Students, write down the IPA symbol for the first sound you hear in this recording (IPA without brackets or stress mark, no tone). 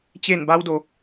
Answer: t͡ɕ